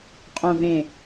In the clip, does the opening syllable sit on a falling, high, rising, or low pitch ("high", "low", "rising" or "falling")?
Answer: low